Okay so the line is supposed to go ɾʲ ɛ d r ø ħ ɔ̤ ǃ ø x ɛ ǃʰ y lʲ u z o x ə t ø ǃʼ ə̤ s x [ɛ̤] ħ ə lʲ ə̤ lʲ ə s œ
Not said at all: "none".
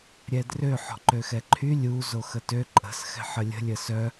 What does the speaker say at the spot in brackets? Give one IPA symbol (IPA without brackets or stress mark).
ɛ̤